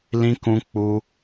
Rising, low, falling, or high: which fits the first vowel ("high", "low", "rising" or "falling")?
high